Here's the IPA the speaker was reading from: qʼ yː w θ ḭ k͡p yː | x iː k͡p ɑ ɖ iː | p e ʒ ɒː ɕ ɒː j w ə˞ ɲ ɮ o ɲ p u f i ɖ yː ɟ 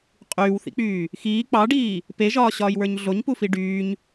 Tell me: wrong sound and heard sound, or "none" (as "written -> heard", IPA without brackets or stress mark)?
ɟ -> ɲ